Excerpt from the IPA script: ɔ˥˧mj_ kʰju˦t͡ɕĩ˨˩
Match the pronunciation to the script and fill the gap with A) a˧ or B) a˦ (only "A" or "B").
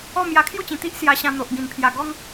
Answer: A